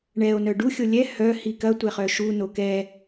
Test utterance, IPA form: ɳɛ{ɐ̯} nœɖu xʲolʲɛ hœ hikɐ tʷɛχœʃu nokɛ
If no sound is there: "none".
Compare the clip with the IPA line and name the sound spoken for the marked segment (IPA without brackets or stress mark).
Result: o̯